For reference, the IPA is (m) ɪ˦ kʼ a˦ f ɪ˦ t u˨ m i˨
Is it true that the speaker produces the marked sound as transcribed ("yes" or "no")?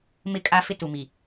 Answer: yes